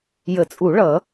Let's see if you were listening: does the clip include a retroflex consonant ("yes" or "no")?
yes